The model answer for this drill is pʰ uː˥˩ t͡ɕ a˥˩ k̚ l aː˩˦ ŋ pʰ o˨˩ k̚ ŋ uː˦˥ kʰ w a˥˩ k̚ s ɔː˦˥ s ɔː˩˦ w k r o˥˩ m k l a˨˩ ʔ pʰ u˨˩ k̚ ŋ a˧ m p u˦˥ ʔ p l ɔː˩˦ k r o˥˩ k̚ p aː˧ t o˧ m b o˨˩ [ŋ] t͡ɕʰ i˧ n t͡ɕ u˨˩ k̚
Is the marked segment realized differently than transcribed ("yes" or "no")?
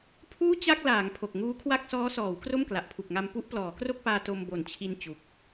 yes